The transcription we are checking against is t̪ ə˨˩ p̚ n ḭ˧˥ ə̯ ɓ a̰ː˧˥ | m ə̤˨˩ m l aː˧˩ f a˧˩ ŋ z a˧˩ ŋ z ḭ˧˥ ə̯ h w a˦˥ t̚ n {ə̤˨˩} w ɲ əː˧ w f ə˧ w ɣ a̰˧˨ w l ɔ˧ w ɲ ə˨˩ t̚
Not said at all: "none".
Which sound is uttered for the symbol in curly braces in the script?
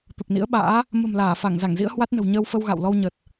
ə̤˨˩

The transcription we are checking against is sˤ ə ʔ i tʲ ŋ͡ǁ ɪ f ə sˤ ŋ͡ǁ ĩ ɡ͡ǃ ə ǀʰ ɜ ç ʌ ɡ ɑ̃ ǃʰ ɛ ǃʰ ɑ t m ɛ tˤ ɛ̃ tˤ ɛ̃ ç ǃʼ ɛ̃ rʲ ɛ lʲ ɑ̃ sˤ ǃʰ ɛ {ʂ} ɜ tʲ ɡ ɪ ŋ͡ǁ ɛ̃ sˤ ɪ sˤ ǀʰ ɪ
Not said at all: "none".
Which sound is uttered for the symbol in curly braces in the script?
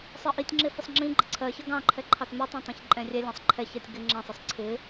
ç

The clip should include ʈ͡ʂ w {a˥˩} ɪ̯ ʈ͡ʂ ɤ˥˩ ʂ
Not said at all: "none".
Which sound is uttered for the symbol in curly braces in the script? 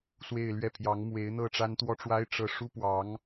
a˥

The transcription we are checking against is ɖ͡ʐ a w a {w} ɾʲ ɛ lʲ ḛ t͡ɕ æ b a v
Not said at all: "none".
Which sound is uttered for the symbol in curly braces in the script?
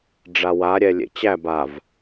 none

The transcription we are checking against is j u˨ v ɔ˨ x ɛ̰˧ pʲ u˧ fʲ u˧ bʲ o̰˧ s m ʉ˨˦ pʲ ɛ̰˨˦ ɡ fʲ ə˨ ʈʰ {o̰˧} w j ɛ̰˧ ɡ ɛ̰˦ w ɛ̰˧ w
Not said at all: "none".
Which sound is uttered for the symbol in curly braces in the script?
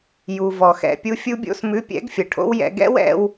o̰˦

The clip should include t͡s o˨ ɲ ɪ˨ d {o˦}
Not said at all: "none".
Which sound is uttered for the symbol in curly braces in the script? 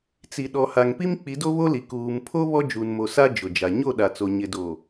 o˨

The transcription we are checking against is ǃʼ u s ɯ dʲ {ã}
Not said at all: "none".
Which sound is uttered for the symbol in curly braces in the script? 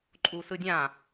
ã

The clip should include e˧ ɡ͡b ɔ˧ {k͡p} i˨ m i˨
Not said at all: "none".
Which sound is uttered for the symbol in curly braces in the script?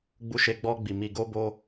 ɡ͡b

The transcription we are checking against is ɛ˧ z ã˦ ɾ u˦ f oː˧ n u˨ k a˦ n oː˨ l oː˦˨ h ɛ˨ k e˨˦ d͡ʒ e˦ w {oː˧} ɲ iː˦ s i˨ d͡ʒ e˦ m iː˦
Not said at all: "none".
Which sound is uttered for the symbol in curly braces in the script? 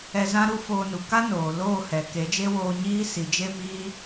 oː˧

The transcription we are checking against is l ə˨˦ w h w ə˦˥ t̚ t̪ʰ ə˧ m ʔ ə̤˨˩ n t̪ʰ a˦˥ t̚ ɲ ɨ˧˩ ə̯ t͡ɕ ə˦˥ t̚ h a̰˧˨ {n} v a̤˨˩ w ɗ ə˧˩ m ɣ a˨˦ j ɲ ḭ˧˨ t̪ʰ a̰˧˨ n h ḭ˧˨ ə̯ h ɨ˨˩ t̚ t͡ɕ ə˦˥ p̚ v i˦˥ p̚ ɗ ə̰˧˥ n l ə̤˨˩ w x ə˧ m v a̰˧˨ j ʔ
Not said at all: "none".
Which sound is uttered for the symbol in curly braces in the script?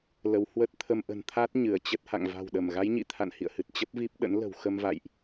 ŋ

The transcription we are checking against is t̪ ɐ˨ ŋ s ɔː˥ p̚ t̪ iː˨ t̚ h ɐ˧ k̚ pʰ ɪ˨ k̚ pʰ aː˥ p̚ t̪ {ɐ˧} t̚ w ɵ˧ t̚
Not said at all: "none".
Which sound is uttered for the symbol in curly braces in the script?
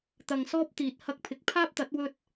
ɐ˨˥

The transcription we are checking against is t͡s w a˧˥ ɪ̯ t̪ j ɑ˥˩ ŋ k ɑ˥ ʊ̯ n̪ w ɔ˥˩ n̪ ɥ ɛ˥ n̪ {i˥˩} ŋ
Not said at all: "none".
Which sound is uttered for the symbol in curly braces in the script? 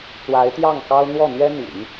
ḭ˨˩˦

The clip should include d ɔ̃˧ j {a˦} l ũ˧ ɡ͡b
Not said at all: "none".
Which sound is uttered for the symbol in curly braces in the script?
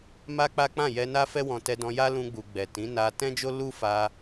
a˦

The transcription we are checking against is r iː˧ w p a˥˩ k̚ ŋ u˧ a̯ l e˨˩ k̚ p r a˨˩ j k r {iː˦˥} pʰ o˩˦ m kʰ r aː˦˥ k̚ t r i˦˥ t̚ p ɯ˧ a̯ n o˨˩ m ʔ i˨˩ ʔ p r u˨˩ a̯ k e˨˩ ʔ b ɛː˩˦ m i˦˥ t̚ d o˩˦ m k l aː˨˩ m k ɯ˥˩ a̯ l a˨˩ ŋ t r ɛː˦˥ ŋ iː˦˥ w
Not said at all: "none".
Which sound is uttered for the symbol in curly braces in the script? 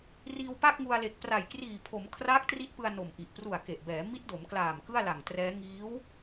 iː˨˩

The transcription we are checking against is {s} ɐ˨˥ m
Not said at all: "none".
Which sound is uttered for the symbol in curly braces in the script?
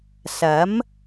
s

